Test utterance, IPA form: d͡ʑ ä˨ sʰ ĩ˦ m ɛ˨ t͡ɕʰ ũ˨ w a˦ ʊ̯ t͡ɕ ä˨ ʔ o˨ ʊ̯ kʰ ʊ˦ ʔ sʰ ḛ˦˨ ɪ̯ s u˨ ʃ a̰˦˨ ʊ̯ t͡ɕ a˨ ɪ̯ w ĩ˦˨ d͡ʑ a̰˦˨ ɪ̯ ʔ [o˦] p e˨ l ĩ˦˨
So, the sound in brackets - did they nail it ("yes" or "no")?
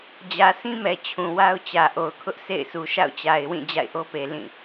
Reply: yes